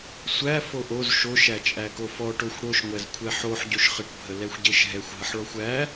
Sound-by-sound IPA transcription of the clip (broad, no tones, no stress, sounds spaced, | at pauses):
sʷ æ f o ʔ o z ʃ o ʃ æ t͡ʃʼ æ k o f ɔ ʈ o xʷ ɽ o ʃ ŋʷ ɛ z kʷʰ ɛ ħ o ħ ɟ o ʃ χ ə ʈ bʱ ə l ɛ xʷ ɟ e ʃ ɦ ɛ xʷ ɦ ə ħ ɭ ɔ xʷ æ